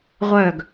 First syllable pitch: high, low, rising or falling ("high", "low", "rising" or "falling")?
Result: falling